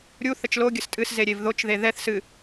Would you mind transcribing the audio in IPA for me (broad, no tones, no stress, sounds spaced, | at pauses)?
ɾʲ u θ ə t͡ʃ l o ɡʲ ə s tʼ ɨ s z e ɾʲ e v ð o t͡ʃ ð e ð ɛ θ s ɨ